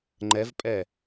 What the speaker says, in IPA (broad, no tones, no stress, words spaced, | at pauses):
ŋ͡ǃɛvpʼɛ